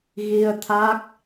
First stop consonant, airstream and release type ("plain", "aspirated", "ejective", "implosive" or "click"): aspirated